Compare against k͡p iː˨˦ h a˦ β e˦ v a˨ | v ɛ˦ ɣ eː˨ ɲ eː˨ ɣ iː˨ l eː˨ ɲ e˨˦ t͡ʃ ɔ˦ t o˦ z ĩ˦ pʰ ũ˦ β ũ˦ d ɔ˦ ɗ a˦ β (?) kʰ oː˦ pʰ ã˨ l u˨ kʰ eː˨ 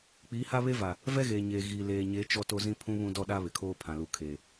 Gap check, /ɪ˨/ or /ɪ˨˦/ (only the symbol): ɪ˨